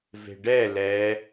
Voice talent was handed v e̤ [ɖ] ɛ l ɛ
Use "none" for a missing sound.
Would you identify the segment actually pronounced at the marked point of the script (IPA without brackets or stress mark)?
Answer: ɖ